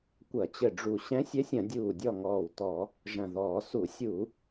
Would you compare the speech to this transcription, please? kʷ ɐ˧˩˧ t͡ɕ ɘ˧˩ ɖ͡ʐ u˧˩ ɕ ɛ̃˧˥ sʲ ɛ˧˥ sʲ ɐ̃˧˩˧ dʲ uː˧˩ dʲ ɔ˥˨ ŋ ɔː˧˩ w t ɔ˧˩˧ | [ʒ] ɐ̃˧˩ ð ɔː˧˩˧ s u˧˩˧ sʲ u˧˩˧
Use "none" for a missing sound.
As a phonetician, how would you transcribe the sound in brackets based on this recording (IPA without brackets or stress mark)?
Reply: ʒ